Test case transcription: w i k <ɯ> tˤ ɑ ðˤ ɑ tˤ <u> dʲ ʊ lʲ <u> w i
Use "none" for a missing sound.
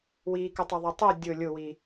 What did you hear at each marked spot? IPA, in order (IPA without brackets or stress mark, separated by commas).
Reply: u, u, ʊ